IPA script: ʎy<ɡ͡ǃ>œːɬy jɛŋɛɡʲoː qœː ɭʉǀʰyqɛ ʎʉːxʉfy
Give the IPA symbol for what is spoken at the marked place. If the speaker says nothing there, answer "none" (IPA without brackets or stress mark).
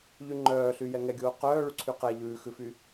ŋ͡ǃ